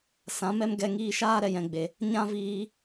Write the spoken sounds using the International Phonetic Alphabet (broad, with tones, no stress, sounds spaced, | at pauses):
s ã˨˦ m ɛ˦ m ɡ ɛ˧ ŋ iː˧ ʃ aː˦ ɾ ɛ˨ j ɛ̃˨ ɡ͡b e˨ | ɲ ã˦ v iː˧